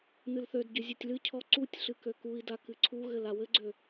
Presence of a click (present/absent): present